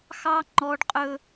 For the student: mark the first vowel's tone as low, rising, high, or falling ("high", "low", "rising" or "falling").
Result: high